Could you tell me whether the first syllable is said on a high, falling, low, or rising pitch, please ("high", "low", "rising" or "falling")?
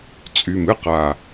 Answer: low